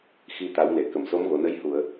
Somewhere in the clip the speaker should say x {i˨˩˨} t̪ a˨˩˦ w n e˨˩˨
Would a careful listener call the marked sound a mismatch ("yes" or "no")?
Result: yes